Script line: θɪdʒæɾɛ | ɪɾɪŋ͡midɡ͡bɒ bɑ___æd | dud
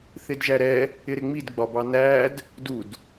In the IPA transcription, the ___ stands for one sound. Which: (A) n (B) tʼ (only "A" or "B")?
A